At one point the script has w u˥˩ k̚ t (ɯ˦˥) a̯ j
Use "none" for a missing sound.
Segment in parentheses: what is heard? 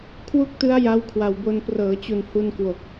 ɯ˦˥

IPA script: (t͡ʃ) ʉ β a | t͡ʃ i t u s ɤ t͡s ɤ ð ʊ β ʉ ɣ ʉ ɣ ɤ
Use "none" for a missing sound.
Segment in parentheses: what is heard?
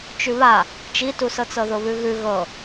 t͡ʃ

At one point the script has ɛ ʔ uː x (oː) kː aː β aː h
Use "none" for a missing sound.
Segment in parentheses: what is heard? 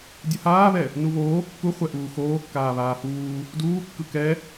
oː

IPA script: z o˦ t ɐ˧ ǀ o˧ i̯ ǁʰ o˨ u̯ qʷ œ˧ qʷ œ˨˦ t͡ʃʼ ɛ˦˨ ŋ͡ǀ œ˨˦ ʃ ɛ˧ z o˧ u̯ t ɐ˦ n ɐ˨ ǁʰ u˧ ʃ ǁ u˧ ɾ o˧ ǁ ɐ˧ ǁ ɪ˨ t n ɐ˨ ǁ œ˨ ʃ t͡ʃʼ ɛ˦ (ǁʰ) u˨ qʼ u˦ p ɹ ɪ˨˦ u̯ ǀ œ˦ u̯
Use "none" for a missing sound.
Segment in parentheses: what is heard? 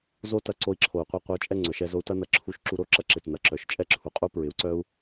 ǁʰ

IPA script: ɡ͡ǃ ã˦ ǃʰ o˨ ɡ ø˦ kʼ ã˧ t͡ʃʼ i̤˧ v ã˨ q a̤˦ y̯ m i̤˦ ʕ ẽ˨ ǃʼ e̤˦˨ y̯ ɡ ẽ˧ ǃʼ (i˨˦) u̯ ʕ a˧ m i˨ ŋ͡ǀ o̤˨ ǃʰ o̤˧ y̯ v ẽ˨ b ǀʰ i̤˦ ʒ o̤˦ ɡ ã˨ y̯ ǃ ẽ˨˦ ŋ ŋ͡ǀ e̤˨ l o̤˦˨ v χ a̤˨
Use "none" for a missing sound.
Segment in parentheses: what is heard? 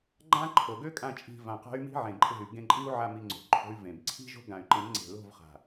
i˦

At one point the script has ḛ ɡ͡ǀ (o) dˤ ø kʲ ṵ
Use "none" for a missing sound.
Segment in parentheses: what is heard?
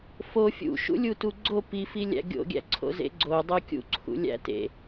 o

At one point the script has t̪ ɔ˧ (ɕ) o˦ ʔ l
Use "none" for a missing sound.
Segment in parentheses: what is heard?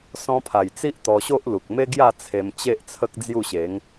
ɕ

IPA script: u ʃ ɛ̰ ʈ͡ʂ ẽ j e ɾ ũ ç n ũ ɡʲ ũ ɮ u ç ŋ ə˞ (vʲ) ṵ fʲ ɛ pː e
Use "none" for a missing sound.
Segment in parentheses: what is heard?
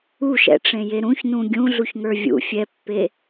vʲ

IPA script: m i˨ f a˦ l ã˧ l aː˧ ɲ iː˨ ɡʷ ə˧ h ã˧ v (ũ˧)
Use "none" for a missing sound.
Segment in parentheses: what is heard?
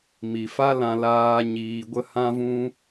ũ˧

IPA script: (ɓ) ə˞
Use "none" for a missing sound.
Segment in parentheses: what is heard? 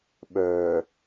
ɓ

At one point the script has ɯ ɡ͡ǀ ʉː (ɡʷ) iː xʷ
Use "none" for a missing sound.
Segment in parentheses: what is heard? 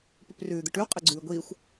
ɡʷ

